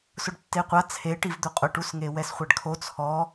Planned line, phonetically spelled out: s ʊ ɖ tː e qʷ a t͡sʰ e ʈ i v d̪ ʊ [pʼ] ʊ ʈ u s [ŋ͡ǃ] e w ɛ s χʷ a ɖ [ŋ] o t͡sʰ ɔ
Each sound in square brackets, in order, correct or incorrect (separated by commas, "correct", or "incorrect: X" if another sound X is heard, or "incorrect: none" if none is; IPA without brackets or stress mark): incorrect: qʼ, incorrect: ŋ, incorrect: kʰ